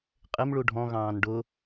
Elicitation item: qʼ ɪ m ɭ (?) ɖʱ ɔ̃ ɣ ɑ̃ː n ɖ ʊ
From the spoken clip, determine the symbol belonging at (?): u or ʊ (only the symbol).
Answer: u